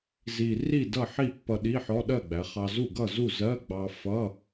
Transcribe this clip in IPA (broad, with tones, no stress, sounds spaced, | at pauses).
z i˨˩ r i˥˩ d ʌ˥˩ ħ i˥˩ pː ʌ˧ ɗ i˧˥˧ ħ ɔ˧˥˧ ɗ ɜ˥˩ ɡ͡b æ˩˧ χ ɑ˧ z u˥˩ ɡ ʌ˥˩ z u˥˩ z ɜ˧˥˧ ɡ͡b ɑ˧ f ʌ˧˥˧